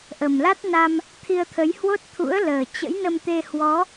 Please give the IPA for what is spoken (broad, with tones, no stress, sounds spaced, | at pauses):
ʔ ə˨˩ m l a˦˥ t̚ n a˧ m | t̪ʰ i˧ ə̯ t̪ʰ ə˨˦ j h w o˦˥ t̚ t̪ʰ ṵ˧˥ ə̯ l əː˨˩ t͡ɕ ə̰˧˥ j n ə˧ m t̪ e˧ h w ɔ˨˦